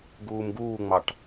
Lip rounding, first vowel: rounded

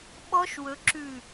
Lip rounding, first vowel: rounded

